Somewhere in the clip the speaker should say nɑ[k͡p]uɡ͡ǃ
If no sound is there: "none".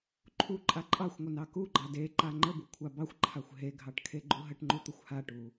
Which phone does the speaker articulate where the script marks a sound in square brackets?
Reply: k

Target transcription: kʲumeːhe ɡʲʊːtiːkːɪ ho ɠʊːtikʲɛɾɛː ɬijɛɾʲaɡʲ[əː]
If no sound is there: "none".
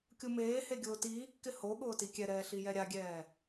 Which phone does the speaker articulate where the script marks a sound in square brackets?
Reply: ɛː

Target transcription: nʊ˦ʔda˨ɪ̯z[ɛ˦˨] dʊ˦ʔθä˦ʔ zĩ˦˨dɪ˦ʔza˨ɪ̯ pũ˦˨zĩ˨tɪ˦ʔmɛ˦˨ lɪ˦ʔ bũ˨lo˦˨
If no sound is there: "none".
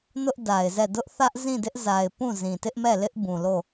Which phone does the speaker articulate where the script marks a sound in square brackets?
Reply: ɛ˦˨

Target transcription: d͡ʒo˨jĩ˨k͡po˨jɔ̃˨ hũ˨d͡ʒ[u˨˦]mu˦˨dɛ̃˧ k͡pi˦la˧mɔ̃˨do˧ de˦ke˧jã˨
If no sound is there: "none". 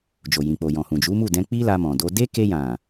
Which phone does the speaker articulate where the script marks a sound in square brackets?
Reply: u˨˦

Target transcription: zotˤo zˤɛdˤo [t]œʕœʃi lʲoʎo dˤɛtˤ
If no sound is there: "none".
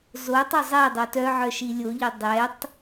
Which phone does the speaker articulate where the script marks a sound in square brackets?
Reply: t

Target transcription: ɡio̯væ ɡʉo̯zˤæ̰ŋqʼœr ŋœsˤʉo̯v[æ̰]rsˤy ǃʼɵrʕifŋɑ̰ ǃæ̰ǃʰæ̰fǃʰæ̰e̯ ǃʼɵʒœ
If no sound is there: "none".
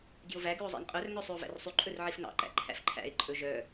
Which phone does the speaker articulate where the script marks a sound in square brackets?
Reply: æ̰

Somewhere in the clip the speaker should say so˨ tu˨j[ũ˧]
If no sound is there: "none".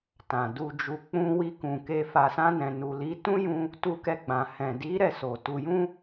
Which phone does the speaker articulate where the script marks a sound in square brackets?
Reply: ũ˧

